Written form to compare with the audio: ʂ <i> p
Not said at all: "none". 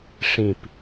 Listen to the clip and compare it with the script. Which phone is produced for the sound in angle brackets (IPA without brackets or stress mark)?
ĩ